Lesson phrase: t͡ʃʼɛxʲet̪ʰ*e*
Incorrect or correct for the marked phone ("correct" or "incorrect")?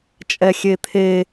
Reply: correct